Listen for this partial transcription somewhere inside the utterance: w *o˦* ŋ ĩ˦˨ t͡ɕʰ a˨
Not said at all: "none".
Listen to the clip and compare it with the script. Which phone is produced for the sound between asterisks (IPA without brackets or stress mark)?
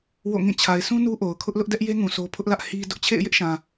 o̰˦˨